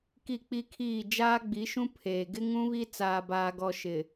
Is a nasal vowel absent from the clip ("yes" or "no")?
no